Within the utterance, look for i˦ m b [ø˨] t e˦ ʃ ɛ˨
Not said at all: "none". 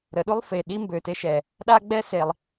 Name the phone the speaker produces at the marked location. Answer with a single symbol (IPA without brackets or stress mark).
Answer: ø˨